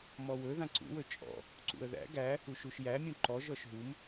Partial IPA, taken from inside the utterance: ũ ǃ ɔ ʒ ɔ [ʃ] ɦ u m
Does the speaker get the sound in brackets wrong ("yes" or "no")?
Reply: no